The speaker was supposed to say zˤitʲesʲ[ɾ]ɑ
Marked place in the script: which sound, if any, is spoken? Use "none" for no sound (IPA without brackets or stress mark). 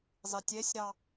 ɾ